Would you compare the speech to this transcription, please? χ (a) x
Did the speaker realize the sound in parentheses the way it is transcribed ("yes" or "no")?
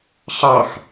no